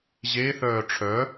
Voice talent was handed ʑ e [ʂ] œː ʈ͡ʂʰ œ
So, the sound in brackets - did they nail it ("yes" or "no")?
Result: no